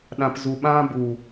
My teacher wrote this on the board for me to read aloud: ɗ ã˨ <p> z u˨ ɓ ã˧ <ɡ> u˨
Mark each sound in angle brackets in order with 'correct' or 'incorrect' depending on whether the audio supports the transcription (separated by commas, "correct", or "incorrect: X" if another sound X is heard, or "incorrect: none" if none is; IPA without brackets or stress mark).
correct, incorrect: b